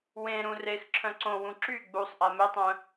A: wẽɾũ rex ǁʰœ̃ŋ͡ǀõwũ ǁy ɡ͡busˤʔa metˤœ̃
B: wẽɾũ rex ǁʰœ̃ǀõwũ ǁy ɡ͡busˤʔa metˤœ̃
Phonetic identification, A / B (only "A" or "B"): B